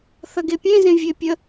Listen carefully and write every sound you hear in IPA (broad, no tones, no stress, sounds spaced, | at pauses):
θ ɐ ɡ e pʲ ẽ z ẽ vʲ e pʲ ə